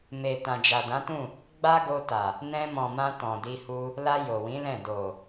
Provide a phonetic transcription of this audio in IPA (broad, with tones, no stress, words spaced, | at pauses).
me˨ tã˨d͡ʒa˨dã˨˦tũ˦˨ | ɡ͡ba˦ɡo˧ ta˨ | nɛ̃˧mɔ̃˨mã˧ tɔ̃˨di˧hu˧ | la˧ jo˨wĩ˨˦lɛ̃˦˨ do˨